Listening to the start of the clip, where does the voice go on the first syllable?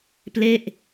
falling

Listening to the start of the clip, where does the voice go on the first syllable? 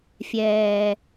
low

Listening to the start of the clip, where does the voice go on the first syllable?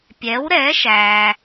rising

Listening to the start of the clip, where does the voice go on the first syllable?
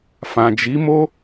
low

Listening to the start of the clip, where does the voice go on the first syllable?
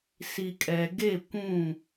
low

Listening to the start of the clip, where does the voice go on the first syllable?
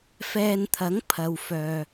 low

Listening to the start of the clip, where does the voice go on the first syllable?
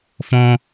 high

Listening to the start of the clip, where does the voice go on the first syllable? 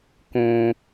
low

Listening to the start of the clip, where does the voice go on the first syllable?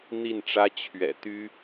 falling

